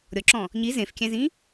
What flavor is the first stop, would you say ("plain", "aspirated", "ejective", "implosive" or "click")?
click